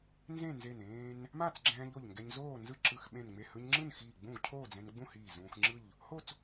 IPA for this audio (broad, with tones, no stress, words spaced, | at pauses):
nzẽ˥˨nze˧˩nẽː˧n | ma˥˨t͡sɡ͡ǁɛ̃ː˧ʎ o˧˩ʎŋɡɛ˧ɲ zoː˥˨nzɯ˥˨ ǁɯ˧˩xɓẽ˧˩n ŋ͡me˧˩hɯ˧ɲŋ͡ǁɯ˥˨nxiː˧˩ ɡ͡bũ˥˨ɡcʰoː˥˨d͡zɛ̃˧n ɡ͡bũ˥˨hiː˧˩ zũː˧xŋ͡ǁɯ˥˨ʎ | ho˥˨t͡s